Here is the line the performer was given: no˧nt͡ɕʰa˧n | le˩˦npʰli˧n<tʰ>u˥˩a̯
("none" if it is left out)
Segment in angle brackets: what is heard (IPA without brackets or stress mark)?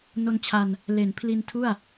tʰ